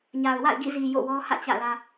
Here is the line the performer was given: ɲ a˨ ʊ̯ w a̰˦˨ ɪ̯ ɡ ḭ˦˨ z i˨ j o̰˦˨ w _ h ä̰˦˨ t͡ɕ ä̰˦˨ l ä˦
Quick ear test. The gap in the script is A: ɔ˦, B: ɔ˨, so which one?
A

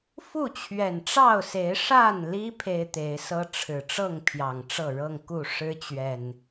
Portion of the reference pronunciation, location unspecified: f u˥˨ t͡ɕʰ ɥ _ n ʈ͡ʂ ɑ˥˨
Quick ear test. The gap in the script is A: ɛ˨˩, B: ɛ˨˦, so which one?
A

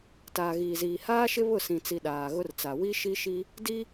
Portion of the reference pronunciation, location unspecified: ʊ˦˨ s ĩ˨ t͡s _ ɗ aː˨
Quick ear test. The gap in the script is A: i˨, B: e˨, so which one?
A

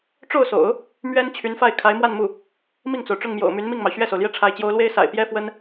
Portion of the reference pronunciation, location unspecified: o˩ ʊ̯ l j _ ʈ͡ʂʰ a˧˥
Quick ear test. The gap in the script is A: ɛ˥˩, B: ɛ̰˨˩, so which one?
A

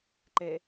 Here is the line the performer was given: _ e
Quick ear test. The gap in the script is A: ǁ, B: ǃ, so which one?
B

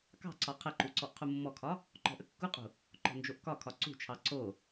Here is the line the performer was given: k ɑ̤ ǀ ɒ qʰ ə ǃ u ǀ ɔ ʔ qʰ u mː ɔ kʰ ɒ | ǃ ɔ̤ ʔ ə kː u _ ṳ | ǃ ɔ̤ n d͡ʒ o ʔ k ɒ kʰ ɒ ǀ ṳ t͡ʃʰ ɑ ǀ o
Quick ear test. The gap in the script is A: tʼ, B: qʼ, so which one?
B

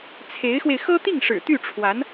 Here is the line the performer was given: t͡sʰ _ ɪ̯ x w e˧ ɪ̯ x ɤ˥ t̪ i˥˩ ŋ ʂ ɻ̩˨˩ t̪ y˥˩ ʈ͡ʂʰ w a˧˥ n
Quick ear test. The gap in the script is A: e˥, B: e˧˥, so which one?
B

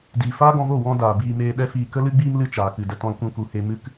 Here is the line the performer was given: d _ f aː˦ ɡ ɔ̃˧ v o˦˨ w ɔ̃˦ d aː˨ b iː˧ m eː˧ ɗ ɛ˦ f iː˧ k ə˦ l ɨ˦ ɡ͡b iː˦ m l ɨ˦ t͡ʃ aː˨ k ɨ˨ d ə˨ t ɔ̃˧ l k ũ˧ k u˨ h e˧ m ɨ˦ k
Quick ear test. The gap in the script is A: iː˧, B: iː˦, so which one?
A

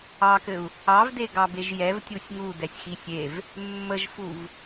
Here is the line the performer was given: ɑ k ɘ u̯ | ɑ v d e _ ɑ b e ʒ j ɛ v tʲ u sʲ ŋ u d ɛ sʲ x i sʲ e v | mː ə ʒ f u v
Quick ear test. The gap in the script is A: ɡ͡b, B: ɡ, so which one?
B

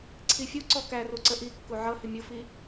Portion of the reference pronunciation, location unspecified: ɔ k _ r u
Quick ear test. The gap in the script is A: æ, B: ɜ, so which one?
A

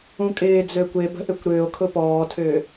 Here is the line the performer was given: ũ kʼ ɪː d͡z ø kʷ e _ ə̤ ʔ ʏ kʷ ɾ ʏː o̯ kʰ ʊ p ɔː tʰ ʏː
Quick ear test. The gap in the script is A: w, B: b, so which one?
B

